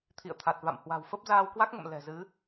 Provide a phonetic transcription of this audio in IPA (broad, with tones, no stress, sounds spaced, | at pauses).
t̪ʰ ḭ˧˨ ə̯ t̪ʰ a˨˩ t̚ v a̰˧˨ m h w a̤˨˩ w f ə˦˥ p̚ z aː˧ w k w a˦˥ k̚ ŋ ə̰˧˨ m l ɛ̤˨˩ z ɨ˨˦